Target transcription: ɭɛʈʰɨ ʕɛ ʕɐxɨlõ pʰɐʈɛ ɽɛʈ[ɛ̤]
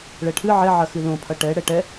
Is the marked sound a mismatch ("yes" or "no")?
yes